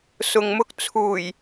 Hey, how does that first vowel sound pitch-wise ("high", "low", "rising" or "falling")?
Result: low